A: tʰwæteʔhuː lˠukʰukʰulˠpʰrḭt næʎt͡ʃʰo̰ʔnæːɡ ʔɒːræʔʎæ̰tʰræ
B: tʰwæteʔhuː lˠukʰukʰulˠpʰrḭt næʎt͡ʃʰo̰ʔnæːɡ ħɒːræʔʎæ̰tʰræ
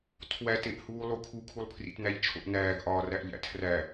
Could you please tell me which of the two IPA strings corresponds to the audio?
A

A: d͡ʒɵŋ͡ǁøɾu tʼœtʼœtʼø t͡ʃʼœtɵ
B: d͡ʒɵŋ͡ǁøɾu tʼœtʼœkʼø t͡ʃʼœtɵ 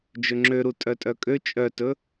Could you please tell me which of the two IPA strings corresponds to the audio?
B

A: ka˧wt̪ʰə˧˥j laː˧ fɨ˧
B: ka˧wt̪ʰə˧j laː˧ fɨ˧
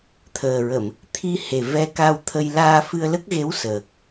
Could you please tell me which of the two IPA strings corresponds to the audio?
B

